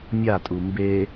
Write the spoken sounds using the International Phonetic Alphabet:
mʲ a tʼ u m b e

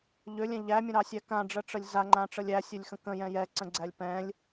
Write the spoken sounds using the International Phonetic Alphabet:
ʎ ø lʲ ɛ̃ ʎ æ mʲ ə̃ ɾ ɑ sʲ æ k ã ɖ͡ʐ ə ʈ͡ʂ ə lʲ z a ŋ͡ǃ ã ʈ͡ʂ ə lʲ æ sʲ ø lʲ x ə̃ k ə̃ j ɛ̃ j ɛ ǀ ə̃ ɡ͡ǀ æ lʲ p ɛ̃ lʲ

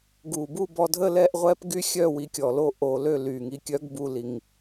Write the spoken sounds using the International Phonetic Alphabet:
ɡ u˨˩ b u˥˧ b ɔ˧ dʱ ə˥˧ l ɛ˥˧ ʔ ʁʷ ɛ˦˥ p ɡ y˦˥ xʲ œ˥˧ w i˧ kʲ ɔ˨˩ l o˥˧ ʔ o˧ l ø˥˧ l y˨˩ ŋ i˧ kʲ œ˦˥ ɡ b u˧ l i˨˩ ŋ

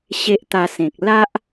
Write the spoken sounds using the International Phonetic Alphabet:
ɕ e˦ ʔ t̪ a˧ s ẽ˨ k̚ l a˦ ʔ

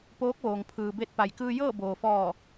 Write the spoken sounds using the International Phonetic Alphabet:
p oː˧˥ k̚ ʋ oː˩ ŋ pʰ ɯː˩ b e˧˥ t̚ p a˩ j k ɯː˧ j ɤː˥˨ b oː˩ f ɔː˧˩

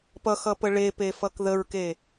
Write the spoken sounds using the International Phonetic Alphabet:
p ʌ x ʌ p ə ɭ e p e f ʌ k ð ə ɹ k e

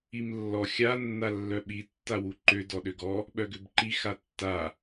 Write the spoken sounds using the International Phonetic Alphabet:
i m lː ɔ xʲ a nː a lː œ ɓ i tː a w u ǃ ø d ɔ ɗ ø ɡ ɔ | ɓ œ ɡ ø b ǃ i x a tː a

